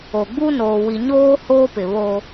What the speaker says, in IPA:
o˨ ɡ͡b u˦ n oː˨ w i˨ ɲ oː˦ h oː˦ p ɪ˨ β o˦

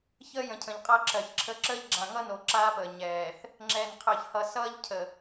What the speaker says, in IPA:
ç əː˦ j ə̃˨ cʰ ə̃˨ ʎ qʼ ʌː˦ ǁ ɜ˨ ç ǁʰ ə˦ ǁ əː˦ ʎ ɡ͡ǁ ã˨ ŋ ʌ˦ n o˨ ǁ aː˦ p əː˨ ɲ ɛː˨ θ | ŋ͡ǁ ɛː˨ n qʰ əː˨ ç h ʌ˨ s ʌː˦ ʎ cʰ ə˨

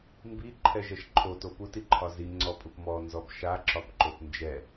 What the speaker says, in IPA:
m b i ǃʰ ɛ ʒ ɛ ʃ ǃʰ o t o p u t i ǃʰ ɒ z i ŋ͡ǀ ɔ pʼ u p m ɔ n z ɔ b ʃ a ǁ ɒ b ǃ o p n d͡ʒ ɛ

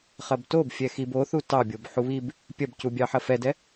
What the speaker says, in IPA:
χ ɐ b t o b fʲ ɛ x i b o θ u t ɑ bʲ o b ħ u β i b | pʲ ɐ b c u bʲ ɑ ħ ɐ f ɛ d ɛ

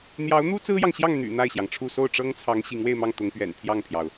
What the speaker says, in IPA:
n̪ j ɑ˧˥ ʊ̯ n̪ u˥ t͡s ɹ̩˥ j ɑ˨ ŋ ɕ j ɑ˥˩ ŋ n̪ y̰˨˩ n̪ a˥˩ ɪ̯ ɕ j ɑ˩ ŋ ʈ͡ʂʰ u˥˧ s o˥˩ ʊ̯ ʈ͡ʂ ɤ˥ ŋ t͡sʰ ɑ˧˥ ŋ ɕ i˧˥ ŋ w e˥˧ ɪ̯ m ɑ˥˩ ŋ t̪ ʊ˧˥ ŋ p ɥ ɛ̰˨˩ n pʰ j ɑ˥˩ ŋ pʰ j ɑ˩ ʊ̯

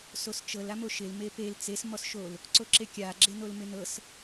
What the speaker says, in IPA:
s o s t͡ʃ ɤ l a m o ʃ ɪ l m e p e l t͡s e s m ɔ s ʃ o l | ǀ o ǁ e kʲ a ɡ͡ǁ e n o l m ɪ n ɤ s

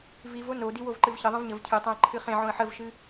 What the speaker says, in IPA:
v i v o n o d i w o v ǃ ɨ v ç ə ðˤ ə̃ v ɲ ə v cʰ ɨ tˤ õ ə̯ ǃʰ ɨ χ ẽ ʕ õ ə̯ ħ ə v ʃ ɨ

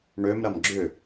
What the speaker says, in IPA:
ɳ ø m ɾ ɐ m ɡ͡ǁ ʏ

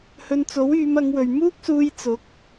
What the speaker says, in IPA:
h ɵ˧ n t͡s o˨˥ w yː˨˧ m ɐ˨˧ ŋ w ɵ˨ ɥ m uː˥ k̚ s uː˧ j t͡s ʊ˨˥ k̚

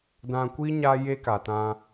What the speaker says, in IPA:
d ã˧ kʷ i˦ ɲ a˦ j e˦ k a˨ t ã˧

